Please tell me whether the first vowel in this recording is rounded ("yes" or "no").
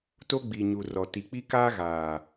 yes